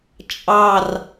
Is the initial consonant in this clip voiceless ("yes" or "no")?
yes